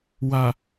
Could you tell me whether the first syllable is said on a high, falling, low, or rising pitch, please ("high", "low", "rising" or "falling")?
low